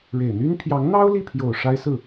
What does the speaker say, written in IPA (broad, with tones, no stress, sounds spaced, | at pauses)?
ɻ e˨˩ ɪ̯ n̪ y˥ n pʰ j ɑ˧˥ ŋ n̪ ɑ˥ ʊ̯ l i˥˩ pʰ j o˨˩ ʊ̯ ʂ a˥ ɪ̯ s ɹ̩˥˩